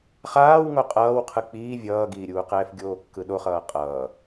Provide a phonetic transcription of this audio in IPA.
χ aː w ŋ o qʼ ʌː w qʰ ɯ k͡p iː vʲ ʌː ɡ iː ɾʲ uː q ɛː f ɡʲ oː kː ɯ ɗ o χ ʌː qʼ ʌː

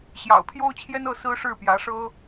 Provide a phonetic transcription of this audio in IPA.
ɕ j ɑ̰˨˩ ʊ̯ pʰ j o˥ ʊ̯ t͡ɕʰ j ɛ˥ n ɤ˥˩ s ɹ̩˥ ʂ ɻ̩˥˩ p j ä˧˥ ʂ ɤ˥

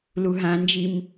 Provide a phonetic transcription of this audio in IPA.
l u ɦ ã n d͡ʒ i m

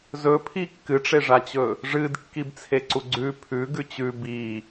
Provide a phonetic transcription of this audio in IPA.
z ɵ pʰ i kː ɨ ʈ͡ʂ e ʐ a t͡ɕ ɵ | ʐ ɨ d kː i b t͡sʰ e ǀ u ɡ͡ǀ ʉ pʰ ʉ ɡ ʉ t͡ɕ ʉ b i

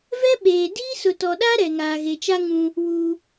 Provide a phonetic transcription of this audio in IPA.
v ɛ˦ ɓ eː˨ d iː˦ s ʊ˨ t ɔ˨ ɗ a˦ ɾ ɛ˨ ŋ aː˨ ɣ e˨ t͡ʃ a˦ ŋ ũ˦ | w uː˦

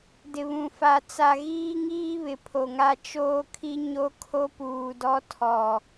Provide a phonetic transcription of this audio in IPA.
d ɪ˨ β ũ˨ f a˨ t͡s a˨ ɣ iː˦ ŋ iː˦ β ɪ˨ pʰ o˨ ŋ a˦ t͡ʃ oː˦ kʰ i˦ ɲ o˦ kʰ o˦ p uː˨ d ɔ˦ tʰ ɔ˨

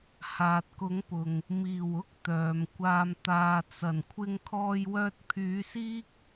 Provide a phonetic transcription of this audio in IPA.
h aː˨ t̚ k ʊ˨˥ ŋ p ʊ˨ ŋ | m iː˨˩ w ʊ˥ k̚ t̪ œː˨ m kʷ aː˧ m t̪ aː˨ t͡s ɐ˨˩ n kʷʰ ɪ˧ ŋ kʰ ɔː˧ j w œː˧ t̚ pʰ yː˨˥ s iː˥ k̚

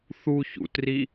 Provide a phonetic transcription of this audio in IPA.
θ u ç ṵ t r i

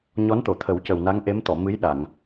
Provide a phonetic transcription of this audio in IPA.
ɲ ɔ˧˥ n t̪ o˨˩˨ t̪ʰ ə˨˩˦ w c ə˨˩ w n a˧˥ ŋ ʔ e˧˥ m t̪ ɔ˨˩˨ m ɨ˧˥ j ɗ a˨˩˨ ŋ

